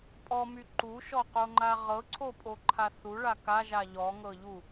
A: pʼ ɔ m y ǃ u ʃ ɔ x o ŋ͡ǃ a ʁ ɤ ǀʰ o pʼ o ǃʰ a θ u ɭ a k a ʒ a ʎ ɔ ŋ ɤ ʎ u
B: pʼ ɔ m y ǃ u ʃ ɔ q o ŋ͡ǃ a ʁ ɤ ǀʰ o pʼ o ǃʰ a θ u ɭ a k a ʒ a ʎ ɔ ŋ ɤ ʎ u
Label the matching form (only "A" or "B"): B